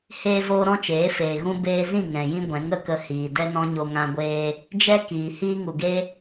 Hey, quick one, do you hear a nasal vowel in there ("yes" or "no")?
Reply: yes